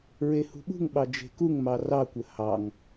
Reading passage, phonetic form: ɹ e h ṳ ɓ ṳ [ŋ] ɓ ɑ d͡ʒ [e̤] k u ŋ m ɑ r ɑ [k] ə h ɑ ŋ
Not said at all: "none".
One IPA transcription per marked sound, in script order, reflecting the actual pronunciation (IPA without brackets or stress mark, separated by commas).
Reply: ŋ, e̤, kʷ